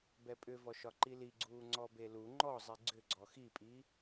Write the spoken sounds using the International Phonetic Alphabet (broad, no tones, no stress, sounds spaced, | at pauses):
b ɛ pʼ ʏ v ɔ ʃ ɒ ǃ i l i ɡ͡ǀ uː ŋ͡ǀ ɔ b e l u ŋ͡ǃ ɔ zˤ i ɡ͡ǀ ʏ ɡ͡ǀ ɔ x i pʼ i